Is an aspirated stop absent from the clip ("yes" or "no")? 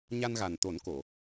yes